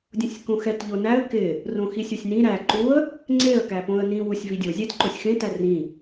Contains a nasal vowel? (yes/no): yes